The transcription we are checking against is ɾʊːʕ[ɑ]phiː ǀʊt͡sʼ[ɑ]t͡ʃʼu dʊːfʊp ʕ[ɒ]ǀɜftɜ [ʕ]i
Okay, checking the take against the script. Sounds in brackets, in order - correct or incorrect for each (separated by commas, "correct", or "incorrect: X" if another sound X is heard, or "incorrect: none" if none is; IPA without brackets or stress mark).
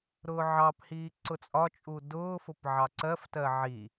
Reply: correct, incorrect: ɒ, incorrect: ɑ, correct